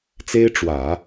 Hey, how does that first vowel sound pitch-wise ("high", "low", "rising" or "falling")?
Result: high